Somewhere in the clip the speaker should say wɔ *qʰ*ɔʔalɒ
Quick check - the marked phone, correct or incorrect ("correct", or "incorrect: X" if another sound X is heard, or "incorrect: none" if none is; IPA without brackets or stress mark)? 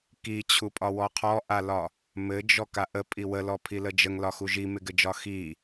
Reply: correct